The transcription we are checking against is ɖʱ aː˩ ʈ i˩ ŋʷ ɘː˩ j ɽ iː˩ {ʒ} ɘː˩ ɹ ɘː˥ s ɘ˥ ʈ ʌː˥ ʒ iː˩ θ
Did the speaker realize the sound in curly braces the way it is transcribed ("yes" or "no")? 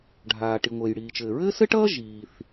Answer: no